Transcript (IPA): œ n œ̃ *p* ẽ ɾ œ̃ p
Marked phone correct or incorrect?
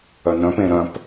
correct